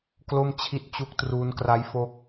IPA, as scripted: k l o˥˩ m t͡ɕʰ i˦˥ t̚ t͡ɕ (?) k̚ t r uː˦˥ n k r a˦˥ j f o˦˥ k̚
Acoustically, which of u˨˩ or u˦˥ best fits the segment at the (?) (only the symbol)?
u˦˥